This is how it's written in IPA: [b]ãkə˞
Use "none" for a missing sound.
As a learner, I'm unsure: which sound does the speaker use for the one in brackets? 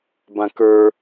b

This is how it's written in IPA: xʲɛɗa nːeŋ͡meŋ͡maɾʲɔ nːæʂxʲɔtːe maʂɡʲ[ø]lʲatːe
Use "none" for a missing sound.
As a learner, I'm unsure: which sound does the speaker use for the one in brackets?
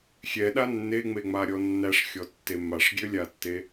ø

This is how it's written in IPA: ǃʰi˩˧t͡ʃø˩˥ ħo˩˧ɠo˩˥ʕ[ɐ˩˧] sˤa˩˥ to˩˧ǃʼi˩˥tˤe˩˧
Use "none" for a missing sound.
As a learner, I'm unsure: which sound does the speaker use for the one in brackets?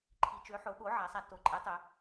a˩˧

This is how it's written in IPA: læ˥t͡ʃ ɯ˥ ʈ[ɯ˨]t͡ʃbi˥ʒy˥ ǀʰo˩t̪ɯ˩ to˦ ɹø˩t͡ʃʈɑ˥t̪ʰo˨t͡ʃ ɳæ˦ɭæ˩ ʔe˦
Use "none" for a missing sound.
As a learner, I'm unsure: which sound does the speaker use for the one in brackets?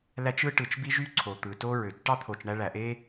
ɯ˨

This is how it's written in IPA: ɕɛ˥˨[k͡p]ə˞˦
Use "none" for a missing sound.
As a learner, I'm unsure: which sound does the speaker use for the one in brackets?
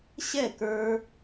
k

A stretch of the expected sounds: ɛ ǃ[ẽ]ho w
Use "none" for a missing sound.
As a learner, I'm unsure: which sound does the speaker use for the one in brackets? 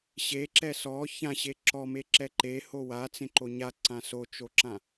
e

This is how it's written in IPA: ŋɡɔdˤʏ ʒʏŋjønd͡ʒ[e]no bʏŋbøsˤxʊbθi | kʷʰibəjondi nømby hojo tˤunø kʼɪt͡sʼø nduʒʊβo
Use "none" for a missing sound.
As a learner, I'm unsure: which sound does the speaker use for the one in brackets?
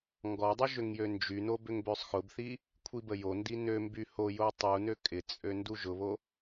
y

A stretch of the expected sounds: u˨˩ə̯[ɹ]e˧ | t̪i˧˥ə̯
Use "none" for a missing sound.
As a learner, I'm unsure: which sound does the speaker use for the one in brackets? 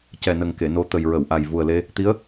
l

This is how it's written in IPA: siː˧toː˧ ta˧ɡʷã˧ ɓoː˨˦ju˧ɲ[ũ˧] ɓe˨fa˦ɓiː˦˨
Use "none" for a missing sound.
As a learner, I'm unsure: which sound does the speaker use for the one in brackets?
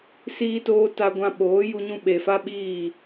ũ˧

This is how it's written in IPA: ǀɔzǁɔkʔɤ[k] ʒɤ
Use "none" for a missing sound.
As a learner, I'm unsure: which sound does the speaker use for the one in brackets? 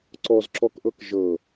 k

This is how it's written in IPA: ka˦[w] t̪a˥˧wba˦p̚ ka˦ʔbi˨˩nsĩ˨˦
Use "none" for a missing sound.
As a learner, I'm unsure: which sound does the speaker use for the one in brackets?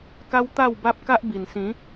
w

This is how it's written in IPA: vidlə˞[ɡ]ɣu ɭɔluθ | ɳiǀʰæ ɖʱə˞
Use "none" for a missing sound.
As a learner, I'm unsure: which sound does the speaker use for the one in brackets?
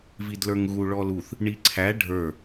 ŋ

